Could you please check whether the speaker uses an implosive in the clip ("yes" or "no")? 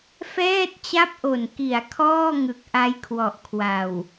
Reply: no